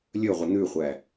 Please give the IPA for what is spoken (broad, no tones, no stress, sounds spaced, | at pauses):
lʲ ɵ ʁʷ ə n̪ ʉ χʷ æ